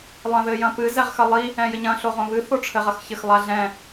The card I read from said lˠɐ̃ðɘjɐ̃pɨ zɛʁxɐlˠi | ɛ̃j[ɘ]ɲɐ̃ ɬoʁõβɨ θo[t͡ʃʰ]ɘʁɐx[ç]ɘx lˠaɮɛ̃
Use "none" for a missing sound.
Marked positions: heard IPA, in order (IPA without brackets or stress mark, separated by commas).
ɘ, ʈ͡ʂʰ, ç